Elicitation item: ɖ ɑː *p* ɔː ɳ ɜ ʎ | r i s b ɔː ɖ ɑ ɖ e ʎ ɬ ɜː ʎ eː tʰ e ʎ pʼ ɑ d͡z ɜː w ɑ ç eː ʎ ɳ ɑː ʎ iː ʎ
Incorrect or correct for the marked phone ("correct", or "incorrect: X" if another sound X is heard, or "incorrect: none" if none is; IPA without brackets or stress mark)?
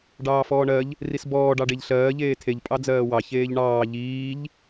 incorrect: f